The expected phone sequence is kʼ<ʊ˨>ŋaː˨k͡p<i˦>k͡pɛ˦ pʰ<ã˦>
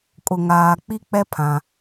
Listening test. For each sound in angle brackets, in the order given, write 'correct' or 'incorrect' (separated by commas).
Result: correct, correct, correct